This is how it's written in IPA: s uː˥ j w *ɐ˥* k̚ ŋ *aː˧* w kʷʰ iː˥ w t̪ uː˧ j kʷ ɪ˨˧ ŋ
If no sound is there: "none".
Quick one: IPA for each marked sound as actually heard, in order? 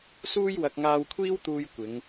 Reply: ɐ˧, aː˧

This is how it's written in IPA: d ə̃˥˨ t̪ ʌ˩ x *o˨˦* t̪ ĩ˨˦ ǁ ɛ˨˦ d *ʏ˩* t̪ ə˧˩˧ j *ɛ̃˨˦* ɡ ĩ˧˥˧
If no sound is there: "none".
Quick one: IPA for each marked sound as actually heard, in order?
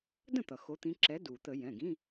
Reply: o˨˦, u˩, ɛ̃˩˧˩

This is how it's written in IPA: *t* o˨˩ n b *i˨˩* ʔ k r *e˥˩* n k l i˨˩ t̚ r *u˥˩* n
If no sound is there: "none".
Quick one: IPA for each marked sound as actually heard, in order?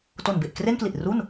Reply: t, e˨˩, e˥˩, u˥˩

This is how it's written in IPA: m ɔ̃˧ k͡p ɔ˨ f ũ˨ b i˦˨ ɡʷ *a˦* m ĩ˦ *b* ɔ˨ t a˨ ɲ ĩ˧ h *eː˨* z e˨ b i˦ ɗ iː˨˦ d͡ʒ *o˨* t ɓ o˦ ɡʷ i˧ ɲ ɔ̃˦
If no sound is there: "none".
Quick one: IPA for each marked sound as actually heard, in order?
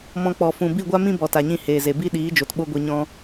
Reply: a˦, b, eː˨, o˨

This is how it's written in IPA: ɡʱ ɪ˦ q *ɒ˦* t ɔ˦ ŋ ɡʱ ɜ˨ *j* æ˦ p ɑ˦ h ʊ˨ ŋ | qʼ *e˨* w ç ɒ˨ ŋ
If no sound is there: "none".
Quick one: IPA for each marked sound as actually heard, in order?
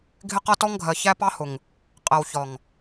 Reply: ʌ˦, ç, ɛ˨

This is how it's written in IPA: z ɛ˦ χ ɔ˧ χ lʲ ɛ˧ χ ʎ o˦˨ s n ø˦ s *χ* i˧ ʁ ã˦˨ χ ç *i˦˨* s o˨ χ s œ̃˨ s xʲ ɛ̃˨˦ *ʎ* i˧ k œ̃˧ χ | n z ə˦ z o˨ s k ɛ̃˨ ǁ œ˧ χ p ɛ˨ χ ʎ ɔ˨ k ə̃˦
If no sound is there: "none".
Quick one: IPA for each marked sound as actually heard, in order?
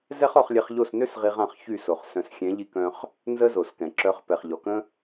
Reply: ʁ, y˦˨, ʎ

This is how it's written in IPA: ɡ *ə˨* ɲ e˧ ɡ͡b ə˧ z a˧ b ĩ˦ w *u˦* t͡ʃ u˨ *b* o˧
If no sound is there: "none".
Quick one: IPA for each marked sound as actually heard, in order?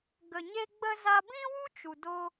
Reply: ə˨, u˦, d

